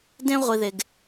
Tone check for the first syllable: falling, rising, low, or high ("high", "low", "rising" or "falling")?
high